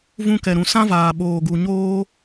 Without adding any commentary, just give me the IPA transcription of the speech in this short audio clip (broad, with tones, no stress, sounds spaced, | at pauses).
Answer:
v ũ˧ k ɛ˨ ɾ ũ˨ s ã˦ v aː˨ ɓ oː˨ ɡ u˨ ɲ oː˦